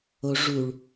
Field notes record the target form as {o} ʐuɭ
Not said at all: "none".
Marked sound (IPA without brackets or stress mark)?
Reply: o